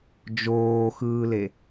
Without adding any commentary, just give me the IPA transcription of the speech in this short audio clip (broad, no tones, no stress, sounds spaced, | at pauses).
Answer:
d͡ʒ oː x ɯː l e